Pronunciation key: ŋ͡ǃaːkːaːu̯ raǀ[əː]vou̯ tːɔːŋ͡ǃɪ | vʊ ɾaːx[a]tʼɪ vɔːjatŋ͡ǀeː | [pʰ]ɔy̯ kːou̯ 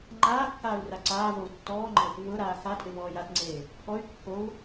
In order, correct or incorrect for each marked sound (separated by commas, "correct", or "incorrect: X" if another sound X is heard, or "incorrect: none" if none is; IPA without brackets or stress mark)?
incorrect: aː, correct, correct